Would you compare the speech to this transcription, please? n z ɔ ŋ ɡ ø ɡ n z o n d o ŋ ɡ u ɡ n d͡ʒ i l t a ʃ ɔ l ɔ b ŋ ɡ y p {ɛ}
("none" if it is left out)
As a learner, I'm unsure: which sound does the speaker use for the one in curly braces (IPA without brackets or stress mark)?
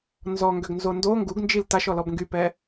ɛ